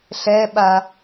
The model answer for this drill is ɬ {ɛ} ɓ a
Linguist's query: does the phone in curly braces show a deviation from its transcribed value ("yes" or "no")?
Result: no